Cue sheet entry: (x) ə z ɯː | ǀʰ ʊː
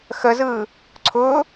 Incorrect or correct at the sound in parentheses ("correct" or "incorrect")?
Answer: correct